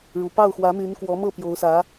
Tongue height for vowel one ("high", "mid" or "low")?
high